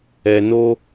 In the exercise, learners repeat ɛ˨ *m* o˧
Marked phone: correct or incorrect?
incorrect